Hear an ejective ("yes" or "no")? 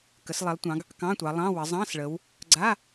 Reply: no